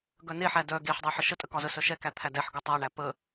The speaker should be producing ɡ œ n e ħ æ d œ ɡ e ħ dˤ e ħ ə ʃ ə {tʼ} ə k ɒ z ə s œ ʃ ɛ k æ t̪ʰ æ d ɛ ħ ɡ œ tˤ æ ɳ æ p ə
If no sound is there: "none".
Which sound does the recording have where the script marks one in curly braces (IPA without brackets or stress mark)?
tʼ